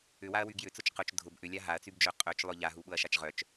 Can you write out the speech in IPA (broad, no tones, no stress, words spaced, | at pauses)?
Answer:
ʏwaɐ̯wy ɡjʏt͡sʊt͡ʃ qʊt͡ʃ dʱʊb ʔʏlʲa ɦaɐ̯t͡sybd͡ʒœ qʼœt͡ʃlˠʊ ʎaɦuɓʊɐ̯ʃat͡ʃ ʁœt͡ʃ